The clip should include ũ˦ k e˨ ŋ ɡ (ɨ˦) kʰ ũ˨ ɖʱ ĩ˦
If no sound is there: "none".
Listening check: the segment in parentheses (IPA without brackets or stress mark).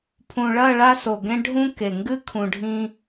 ɨ˦